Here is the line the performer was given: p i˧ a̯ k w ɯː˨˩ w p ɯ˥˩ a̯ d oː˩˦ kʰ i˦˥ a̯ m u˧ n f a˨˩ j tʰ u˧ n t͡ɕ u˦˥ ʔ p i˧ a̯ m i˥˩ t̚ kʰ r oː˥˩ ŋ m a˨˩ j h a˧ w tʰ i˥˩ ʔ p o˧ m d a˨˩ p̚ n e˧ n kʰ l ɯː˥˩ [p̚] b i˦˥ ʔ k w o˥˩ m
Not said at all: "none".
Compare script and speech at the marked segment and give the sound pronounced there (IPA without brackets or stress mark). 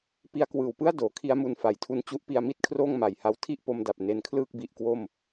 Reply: k̚